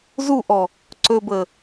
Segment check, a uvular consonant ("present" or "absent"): absent